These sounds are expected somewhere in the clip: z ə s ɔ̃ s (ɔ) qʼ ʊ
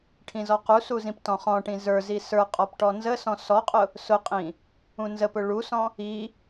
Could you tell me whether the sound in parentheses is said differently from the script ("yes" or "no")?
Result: no